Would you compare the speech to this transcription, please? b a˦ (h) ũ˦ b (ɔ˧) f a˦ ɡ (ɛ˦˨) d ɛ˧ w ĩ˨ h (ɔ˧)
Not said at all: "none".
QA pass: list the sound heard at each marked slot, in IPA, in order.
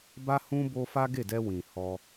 h, o˧, e˦˨, ɔ˧

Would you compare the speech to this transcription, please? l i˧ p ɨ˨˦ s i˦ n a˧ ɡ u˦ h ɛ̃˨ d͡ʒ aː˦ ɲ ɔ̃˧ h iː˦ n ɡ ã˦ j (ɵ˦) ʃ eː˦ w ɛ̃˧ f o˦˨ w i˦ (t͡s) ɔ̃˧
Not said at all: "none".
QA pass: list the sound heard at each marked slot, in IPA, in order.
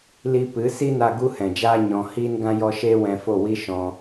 ɔ˦, ʃ

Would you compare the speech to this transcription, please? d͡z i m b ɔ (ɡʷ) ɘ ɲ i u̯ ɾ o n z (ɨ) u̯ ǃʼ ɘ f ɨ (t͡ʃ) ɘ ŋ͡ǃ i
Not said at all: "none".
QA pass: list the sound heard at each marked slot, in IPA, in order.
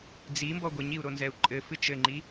ɡʷ, ɛ, t͡ʃ

